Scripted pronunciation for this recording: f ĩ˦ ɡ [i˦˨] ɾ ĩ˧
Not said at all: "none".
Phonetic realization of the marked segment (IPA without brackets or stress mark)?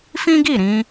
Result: i˦˨